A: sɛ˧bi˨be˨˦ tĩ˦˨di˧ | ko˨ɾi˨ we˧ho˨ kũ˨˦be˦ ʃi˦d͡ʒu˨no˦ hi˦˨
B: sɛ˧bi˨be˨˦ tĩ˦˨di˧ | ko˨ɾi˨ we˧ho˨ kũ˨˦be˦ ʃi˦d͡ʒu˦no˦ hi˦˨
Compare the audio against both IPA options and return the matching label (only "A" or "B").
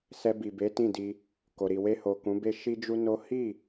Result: B